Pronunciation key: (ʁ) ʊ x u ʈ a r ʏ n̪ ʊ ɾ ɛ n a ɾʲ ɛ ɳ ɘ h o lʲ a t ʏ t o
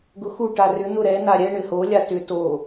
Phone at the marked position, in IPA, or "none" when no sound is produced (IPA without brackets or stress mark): ɡ